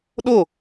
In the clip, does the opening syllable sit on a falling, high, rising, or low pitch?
falling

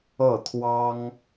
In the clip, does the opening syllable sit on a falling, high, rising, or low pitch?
falling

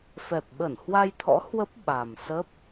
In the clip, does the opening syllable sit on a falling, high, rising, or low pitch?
low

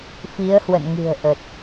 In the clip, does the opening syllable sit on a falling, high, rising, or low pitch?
rising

